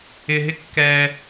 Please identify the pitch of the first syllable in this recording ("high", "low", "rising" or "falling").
low